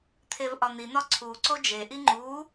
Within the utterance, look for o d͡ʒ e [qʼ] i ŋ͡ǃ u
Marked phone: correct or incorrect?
incorrect